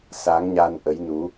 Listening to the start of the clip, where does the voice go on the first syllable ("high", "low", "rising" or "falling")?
rising